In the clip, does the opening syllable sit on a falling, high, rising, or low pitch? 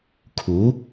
rising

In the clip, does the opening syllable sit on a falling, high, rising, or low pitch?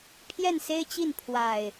falling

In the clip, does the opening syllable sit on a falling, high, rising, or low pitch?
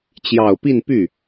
low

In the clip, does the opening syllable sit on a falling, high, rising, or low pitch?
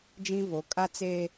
high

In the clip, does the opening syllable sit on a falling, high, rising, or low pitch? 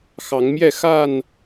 rising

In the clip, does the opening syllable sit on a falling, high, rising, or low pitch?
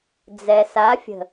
low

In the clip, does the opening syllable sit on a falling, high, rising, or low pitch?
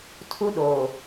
high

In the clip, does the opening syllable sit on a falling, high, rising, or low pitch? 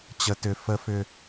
low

